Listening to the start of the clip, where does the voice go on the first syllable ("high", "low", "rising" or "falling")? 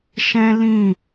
high